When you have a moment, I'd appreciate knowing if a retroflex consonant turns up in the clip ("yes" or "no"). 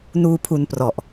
no